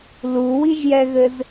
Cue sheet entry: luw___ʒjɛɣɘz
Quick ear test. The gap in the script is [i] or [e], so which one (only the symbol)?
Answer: i